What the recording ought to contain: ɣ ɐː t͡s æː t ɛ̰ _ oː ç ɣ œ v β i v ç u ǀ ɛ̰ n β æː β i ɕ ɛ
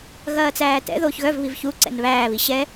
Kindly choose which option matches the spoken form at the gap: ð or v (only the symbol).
ð